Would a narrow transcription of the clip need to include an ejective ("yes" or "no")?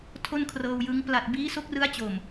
no